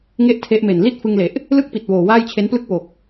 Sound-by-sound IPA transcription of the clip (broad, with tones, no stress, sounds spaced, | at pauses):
ŋ e˥˩ ʔ tʰ e˦˥ ʔ m e˨˩ n l i˥˩ t̚ f ɯ˧ ŋ l e˨˩ ʔ | l ɯ˥˩ k̚ p i˨˩ t̚ w oː˨˩ w aː˥˩ j t͡ɕʰ e˦˥ n p l ɯ˥˩ k̚ w o˨˩ k̚